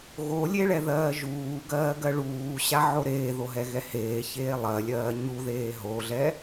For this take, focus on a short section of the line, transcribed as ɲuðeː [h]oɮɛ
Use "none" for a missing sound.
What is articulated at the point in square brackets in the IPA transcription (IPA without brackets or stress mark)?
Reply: ɦ